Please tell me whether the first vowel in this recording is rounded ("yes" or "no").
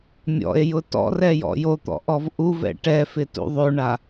yes